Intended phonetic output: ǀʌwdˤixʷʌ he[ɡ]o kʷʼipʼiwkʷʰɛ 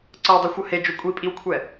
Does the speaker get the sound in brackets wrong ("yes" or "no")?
yes